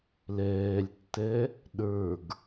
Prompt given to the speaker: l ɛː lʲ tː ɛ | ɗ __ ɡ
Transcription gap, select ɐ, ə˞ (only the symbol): ə˞